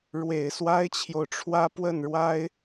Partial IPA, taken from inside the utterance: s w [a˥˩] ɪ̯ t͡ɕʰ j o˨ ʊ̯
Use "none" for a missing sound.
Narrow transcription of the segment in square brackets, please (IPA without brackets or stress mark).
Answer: a˥